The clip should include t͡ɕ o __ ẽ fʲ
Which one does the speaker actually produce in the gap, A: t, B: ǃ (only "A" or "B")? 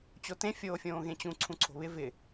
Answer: A